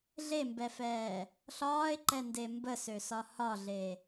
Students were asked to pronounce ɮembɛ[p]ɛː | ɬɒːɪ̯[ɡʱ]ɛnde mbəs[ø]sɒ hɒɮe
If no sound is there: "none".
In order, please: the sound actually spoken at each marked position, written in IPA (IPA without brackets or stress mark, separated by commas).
f, ǃ, ø